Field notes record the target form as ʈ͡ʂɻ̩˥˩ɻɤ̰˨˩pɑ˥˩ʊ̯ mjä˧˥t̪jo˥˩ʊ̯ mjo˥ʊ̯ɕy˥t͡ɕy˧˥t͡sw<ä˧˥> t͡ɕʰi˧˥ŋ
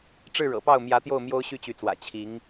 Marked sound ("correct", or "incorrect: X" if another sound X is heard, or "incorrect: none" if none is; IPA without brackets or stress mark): incorrect: ä̰˨˩